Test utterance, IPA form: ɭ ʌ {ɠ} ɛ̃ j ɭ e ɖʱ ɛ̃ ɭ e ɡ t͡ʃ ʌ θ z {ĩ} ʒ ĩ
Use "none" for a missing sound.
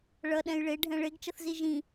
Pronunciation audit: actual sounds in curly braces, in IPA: ɗ, i

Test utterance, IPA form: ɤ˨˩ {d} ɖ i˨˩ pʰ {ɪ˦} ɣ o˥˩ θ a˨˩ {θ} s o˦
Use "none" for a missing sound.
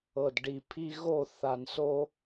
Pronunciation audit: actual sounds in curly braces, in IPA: d, i˦, n

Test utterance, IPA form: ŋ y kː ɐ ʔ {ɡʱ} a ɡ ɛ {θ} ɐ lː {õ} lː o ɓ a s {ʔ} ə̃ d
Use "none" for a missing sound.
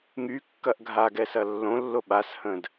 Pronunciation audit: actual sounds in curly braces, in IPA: ɡʱ, s, õ, h

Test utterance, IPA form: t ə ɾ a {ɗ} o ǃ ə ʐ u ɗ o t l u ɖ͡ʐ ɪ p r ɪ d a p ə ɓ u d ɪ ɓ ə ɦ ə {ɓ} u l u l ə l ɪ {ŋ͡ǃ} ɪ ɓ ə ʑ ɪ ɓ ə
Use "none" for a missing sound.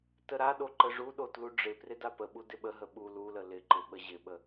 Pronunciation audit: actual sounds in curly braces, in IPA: ɗ, ɓ, ǃ

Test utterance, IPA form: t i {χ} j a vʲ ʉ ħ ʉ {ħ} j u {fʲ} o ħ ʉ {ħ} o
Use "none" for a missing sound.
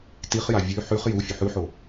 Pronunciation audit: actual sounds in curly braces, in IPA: χ, χ, fʲ, ħ

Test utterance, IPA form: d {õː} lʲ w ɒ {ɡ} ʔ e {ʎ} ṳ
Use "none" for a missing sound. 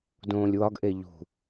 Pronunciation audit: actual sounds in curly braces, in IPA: õː, ɡ, ʎ

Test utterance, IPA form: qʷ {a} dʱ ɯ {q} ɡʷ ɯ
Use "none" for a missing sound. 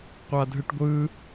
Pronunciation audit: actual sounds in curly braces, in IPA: a, ʈ

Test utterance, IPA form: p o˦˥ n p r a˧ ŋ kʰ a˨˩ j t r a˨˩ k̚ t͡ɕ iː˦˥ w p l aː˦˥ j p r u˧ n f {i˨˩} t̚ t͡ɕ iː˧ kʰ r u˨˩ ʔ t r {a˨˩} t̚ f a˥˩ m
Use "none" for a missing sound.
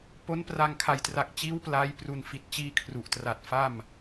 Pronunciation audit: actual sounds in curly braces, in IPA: i˨˩, a˨˩

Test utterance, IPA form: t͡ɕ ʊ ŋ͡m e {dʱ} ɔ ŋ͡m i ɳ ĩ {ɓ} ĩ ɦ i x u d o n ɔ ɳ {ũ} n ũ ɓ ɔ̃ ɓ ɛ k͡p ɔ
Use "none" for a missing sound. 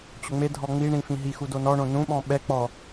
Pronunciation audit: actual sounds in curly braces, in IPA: dʱ, f, õ

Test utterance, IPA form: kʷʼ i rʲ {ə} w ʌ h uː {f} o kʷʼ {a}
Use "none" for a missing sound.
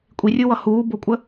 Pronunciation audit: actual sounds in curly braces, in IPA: ɯ, b, ə

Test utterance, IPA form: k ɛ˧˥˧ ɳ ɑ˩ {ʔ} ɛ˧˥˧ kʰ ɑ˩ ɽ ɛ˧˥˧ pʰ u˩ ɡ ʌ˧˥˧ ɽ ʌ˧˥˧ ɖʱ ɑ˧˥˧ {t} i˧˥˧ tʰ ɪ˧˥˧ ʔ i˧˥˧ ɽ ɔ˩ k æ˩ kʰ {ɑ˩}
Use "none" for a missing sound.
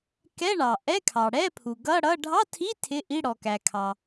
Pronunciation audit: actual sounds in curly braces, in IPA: ʔ, tʰ, ɑ˩

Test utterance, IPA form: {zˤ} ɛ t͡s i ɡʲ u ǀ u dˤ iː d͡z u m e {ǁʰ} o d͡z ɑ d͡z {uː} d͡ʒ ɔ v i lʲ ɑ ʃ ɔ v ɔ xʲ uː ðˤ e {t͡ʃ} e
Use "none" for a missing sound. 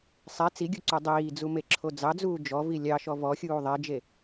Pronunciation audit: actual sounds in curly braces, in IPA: sˤ, ǁʰ, uː, d͡ʒ

